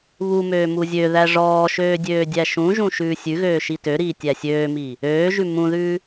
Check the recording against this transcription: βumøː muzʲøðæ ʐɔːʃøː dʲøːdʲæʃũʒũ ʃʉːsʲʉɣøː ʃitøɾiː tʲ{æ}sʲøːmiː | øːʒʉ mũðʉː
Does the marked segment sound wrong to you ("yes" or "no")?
no